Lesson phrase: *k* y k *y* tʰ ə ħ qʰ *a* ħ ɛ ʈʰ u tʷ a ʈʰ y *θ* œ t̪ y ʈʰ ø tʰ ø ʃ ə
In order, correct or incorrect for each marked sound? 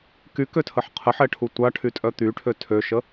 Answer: correct, incorrect: ø, incorrect: ə, incorrect: tʼ

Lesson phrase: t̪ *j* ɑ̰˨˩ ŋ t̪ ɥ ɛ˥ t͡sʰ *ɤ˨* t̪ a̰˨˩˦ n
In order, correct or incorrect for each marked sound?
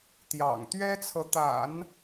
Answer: correct, correct

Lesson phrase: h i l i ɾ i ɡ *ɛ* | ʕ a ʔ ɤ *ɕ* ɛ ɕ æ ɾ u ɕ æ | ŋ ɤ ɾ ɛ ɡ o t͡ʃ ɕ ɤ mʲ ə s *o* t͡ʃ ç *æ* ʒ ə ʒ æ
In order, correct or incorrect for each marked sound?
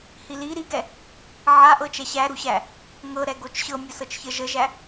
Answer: correct, incorrect: t͡ʃ, incorrect: ɤ, incorrect: ə

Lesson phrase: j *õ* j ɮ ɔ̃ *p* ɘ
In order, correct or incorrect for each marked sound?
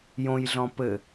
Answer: correct, correct

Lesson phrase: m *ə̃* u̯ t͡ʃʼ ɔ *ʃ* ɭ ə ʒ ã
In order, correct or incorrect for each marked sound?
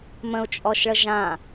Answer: correct, correct

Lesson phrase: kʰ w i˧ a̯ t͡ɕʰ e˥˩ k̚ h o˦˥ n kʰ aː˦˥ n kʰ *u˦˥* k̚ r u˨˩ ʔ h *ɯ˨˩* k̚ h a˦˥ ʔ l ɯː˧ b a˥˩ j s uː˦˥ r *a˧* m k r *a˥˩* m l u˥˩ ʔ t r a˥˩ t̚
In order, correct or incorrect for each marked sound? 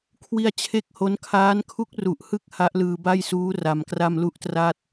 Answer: correct, incorrect: ɯ˦˥, correct, correct

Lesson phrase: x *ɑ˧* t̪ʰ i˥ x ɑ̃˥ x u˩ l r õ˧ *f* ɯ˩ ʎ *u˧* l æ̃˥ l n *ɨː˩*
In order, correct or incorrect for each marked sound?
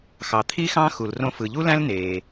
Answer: incorrect: ɑ˩, correct, incorrect: u˥, incorrect: eː˩

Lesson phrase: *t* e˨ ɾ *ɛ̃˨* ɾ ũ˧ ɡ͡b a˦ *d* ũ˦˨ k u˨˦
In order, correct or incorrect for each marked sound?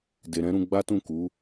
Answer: incorrect: d, incorrect: ɛ̃˨˦, incorrect: t

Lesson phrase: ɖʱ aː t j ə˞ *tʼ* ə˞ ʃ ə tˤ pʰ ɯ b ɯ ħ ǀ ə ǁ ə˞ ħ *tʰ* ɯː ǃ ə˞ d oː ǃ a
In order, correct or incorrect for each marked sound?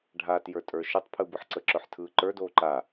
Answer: correct, correct

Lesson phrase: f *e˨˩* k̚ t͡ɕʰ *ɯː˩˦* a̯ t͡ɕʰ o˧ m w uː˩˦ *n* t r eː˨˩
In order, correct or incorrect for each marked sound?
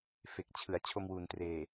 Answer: correct, incorrect: ɯ˩˦, correct

